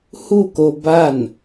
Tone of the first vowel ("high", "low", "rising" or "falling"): falling